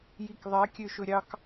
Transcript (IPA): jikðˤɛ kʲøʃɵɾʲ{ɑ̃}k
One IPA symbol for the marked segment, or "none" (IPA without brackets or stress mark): ɑ